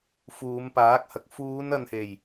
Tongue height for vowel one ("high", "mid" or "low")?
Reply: high